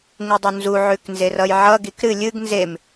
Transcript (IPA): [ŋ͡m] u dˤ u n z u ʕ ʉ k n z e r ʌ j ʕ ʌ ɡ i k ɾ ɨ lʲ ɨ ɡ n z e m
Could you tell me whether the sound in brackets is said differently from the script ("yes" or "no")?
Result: yes